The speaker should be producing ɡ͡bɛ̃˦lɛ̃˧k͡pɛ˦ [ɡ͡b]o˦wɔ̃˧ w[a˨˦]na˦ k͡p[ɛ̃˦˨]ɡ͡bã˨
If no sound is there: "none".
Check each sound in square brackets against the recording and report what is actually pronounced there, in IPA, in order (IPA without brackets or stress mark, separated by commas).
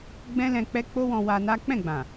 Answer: k͡p, a˧, ɛ̃˦˨